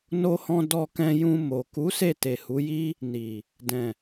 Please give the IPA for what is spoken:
n o˧ h ɔ̃˧ d ɔ˧ k ɛ̃˧ j ũ˧ m o˨ k u˨˦ s e˦˨ t e˨ h u˨˦ j i˦ | n i˨ | d ɛ̃˨

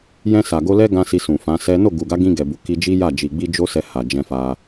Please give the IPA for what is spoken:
j ɛ̃˧ s a˨ ɡ o˧ l ɛ˦ ɡ ã˧ s i˧ s ũ˨ f ã˨˦ s ɛ˦ n o˦˨ ɡ u˨ ɡ a˨˦ ɡ ĩ˧ ɡ ɛ˨ b u˨ k i˧ d͡ʒ i˦ j a˦˨ d͡ʒ i˨ ɡ͡b i˧ d͡ʒ o˦ s ɛ˧ h a˨ d͡ʒ ɛ̃˧ f a˧

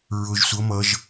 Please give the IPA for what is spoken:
ɹ ʊ ʒ sʷ ʌ m ʌ ʒ

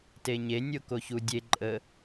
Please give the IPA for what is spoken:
t e ɲ e nʲ o k o ç u dʲ e ǃʼ ə

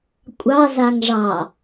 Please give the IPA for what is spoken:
kʷʼ ɑ z a ŋ ʐ ɑ

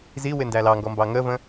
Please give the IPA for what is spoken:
z i w ɪ n d æ l ɑ ŋ ɡ ɔ m b ɑ ŋ ə v ə̃

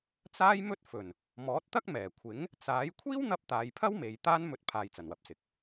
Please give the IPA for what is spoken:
t͡s aː˥ j m ɵ˥ t̚ f ɵ˨˩ n | m ɔː˨˥ t̚ t̪ ɐ˥ k̚ m ɛː˨˩ kʷʰ ɪ˨˥ ŋ | t͡s aː˨˥ j kʷʰ iː˥ w n̪ ɐ˧ p̚ t̪ aː˨ j pʰ ɐ˥ w m e˨ j t̪ aː˥ n m ɵ˧ t̚ pʰ aː˧ j t͡s ɐ˨˩ n w ɐ˨ p̚ s ɪ˨ k̚

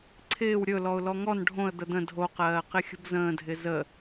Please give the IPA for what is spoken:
ǀʰ ɪː w ɾʲ ɵ l ɔ ʊ̯ l ɔ ŋ ɔ n ɖʱ õ ə̯ d̪ ə d̪ ə̃ dʱ o q ɜː q ɪ xʲ ə̤ b z ə̃ː dʱ ɪ z ə

